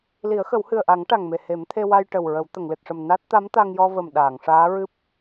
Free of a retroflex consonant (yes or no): no